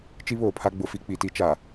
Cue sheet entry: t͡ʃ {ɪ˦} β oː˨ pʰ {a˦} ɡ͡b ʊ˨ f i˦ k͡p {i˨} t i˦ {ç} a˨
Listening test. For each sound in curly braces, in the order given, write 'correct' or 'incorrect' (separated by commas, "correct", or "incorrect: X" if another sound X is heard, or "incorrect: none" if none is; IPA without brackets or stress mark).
incorrect: i˦, correct, correct, incorrect: t͡ʃ